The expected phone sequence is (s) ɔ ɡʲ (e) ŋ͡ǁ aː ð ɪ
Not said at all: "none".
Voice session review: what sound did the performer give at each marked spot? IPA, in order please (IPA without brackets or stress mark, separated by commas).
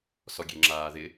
s, e